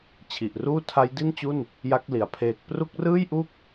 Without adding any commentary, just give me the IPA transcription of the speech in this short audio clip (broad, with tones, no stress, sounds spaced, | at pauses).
t͡ɕʰ i˨˩ ʔ r uː˥˩ tʰ a˦˥ j d i˥˩ n t͡ɕ u˥˩ n | j a˦˥ k̚ l i˨˩ a̯ pʰ eː˨˩ k̚ p r u˦˥ k̚ r ɯː˥˩ j ʔ u˥˩ k̚